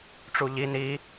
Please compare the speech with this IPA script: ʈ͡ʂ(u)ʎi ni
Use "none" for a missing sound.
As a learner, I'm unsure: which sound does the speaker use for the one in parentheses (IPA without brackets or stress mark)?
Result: u